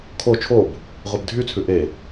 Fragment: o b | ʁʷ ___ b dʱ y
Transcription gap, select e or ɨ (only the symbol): e